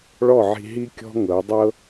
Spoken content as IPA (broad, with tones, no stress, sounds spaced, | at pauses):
ɭ ɔ˦˨ ʕ i̤˧ ɦ i˦ kʲ ɔ̤˦ ŋ ɤ˨˦ dˤ ɤ˦